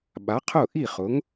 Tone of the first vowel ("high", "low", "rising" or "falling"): rising